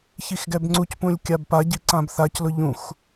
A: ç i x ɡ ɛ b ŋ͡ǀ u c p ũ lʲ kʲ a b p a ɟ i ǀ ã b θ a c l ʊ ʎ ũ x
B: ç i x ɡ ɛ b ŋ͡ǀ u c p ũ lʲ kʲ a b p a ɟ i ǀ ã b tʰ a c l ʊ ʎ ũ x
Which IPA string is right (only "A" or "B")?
A